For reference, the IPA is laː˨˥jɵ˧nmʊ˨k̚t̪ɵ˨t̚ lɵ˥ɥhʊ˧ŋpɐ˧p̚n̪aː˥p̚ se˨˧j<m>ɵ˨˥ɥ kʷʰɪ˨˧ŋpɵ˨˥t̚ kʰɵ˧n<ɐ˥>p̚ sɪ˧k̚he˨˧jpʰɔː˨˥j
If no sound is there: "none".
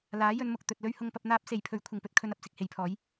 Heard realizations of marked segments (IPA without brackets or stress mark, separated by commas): pʰ, ɐ˨